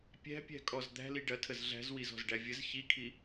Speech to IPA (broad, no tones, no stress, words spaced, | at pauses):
pʲæ̤pʲæ̤kʼɔz d̪æ̤li ɖɐtʰəz ɮæ̤zwizɔ̤zɖæ vʲəz çikʰi